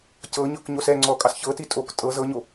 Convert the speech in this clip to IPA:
c ɤ ɲ ɤ k ɲ o s ɛ ŋ͡ǀ ɔ kʼ ɑ s ç ɤ t i tʼ o k tʼ ɤ z ɤ ɲ o

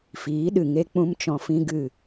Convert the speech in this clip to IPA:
f iː˨˦ ɗ ɨ˨ ŋ e˦ k͡p ũ˦ m t͡ʃ ɔ̃˧ f ĩ˦ ɡ ɨ˦˨

